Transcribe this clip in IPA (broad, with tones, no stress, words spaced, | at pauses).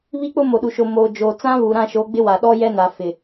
βi˦k͡pʊ˦ mo˨ɗu˨ʃo˨ moː˨ d͡ʒoː˨t͡sã˦ βuː˨ɾã˦˨ʃo˨˦ɡ͡bɪ˦ wa˨ɗɔ˦ jɛ˦na˨fɪ˨